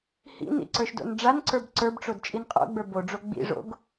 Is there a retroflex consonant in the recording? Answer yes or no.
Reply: yes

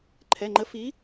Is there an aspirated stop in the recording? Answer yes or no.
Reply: yes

